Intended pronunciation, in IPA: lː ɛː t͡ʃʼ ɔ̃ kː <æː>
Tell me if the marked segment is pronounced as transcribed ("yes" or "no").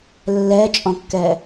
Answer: no